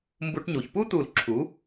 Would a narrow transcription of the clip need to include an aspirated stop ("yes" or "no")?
yes